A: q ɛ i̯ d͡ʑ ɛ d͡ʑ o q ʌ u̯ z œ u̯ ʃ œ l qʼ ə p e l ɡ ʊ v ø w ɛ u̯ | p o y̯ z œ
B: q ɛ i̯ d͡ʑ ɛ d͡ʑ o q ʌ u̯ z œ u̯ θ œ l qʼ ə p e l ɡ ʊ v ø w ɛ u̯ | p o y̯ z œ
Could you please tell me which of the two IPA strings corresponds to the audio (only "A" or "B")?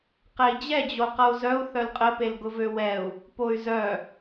B